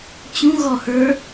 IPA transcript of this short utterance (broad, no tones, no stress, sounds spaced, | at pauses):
t͡ɕ ũ ɣ ɔ h ə˞